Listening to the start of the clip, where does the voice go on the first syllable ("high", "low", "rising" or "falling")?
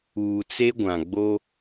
low